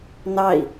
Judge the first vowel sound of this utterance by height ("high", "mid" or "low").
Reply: low